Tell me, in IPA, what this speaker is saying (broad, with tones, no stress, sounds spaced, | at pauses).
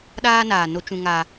ɗ aː˦ n aː˨ n o˦ t͡ʃ ũ˦ ŋ a˦